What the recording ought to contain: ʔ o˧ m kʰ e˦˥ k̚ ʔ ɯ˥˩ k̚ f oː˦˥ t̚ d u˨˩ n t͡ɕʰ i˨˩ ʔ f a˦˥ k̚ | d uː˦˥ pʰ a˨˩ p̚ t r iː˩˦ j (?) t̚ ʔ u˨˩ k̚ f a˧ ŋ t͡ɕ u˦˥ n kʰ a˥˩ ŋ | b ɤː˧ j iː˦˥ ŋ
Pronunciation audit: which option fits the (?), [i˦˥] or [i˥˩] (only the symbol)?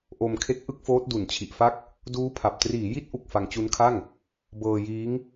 i˦˥